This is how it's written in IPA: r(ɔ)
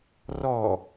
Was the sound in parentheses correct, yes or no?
yes